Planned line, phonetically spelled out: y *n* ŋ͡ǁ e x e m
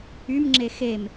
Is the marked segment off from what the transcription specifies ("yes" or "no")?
yes